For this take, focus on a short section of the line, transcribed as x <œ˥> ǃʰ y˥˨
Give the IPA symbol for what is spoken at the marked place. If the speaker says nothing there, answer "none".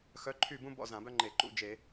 œ˧˥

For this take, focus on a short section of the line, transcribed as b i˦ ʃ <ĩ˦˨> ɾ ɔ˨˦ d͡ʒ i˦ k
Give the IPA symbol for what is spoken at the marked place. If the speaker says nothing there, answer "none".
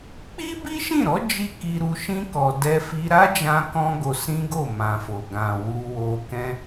ĩ˦˨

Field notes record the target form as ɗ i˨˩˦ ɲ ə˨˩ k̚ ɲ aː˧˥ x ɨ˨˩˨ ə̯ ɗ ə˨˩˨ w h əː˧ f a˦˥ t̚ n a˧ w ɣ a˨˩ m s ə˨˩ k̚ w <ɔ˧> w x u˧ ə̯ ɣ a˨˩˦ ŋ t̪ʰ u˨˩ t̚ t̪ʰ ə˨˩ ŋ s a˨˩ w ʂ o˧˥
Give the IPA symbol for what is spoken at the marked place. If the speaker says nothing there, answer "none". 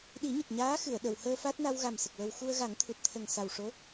ə˧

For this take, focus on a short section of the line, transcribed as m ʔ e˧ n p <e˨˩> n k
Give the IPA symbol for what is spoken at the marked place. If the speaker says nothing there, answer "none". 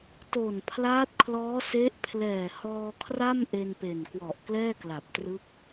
e˨˩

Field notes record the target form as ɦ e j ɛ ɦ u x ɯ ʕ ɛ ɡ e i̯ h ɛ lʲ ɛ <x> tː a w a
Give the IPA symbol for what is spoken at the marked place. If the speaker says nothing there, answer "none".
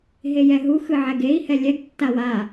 ɡ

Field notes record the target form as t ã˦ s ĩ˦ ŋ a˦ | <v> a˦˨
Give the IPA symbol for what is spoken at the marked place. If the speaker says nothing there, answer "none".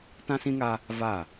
v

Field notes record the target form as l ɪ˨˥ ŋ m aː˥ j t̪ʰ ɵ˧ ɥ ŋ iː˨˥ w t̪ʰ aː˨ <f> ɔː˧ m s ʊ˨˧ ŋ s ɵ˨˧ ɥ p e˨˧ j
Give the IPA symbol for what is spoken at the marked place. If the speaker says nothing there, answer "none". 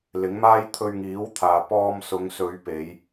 p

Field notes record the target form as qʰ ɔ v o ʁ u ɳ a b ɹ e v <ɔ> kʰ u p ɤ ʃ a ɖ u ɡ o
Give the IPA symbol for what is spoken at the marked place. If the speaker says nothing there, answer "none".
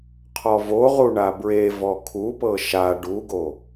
ɔ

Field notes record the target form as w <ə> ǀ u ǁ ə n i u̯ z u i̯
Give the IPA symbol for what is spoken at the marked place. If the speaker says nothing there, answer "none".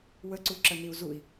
ə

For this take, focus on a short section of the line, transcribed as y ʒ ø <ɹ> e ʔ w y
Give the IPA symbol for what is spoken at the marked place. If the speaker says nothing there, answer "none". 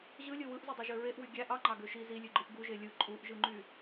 ɹ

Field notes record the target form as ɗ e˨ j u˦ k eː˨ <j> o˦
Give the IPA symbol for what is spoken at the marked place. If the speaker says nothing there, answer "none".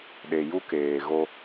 ɣ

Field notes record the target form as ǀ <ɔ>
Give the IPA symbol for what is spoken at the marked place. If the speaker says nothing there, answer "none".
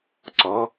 ɔ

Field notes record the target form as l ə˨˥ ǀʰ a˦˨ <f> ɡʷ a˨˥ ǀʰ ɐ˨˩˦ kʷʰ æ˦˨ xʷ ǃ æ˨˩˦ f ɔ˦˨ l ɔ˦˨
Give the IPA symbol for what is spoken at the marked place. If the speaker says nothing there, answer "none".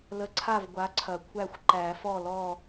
v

